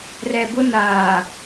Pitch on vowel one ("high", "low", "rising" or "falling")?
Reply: low